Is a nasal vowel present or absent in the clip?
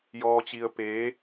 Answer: absent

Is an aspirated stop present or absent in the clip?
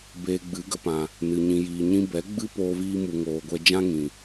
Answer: absent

